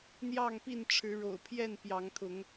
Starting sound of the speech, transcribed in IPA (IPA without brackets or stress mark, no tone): n̪